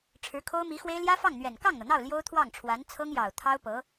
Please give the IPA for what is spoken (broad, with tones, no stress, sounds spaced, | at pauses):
ʈ͡ʂʰ ɻ̩˧˥ kʰ o˥ ʊ̯ m i˧˥ x w e˥ ɪ̯ l j ä˥ f ɑ˥˩ ŋ n̪ ɥ ɛ˨˩ n k ɑ˥˩ ŋ n̪ ɤ˩ n̪ ɑ˥˩ ʊ̯ l j o˥ ʊ̯ t̪ʰ w ɑ˥˩ ŋ ʈ͡ʂʰ w a˧˥ n t͡sʰ ɤ˥ ŋ j ɑ˨˩ ʊ̯ t̪ʰ ɑ˥ ʊ̯ p ɤ˧˥